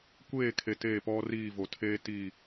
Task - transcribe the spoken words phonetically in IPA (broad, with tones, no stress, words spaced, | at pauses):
kʷeː˦˨kʰe˨ teː˦˨pɔ˦riː˦˨ vo˨tʰeː˦ tiː˦˨